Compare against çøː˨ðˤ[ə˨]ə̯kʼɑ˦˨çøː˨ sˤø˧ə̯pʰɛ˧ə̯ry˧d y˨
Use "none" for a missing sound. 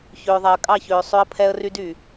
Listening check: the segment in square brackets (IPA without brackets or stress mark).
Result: ɛ˨